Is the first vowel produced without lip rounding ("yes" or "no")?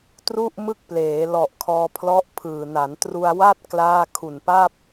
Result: no